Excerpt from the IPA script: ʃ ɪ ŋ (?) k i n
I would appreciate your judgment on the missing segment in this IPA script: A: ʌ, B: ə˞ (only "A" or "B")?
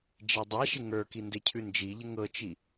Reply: B